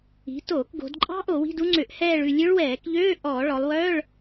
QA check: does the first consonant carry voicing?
no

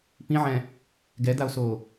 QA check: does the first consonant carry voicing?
no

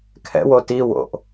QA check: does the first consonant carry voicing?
no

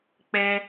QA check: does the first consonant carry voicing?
no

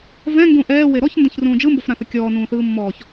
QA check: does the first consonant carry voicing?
yes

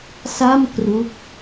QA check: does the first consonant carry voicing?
no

